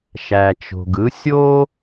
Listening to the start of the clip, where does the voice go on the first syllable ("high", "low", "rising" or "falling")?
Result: low